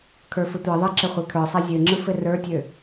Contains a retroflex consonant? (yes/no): no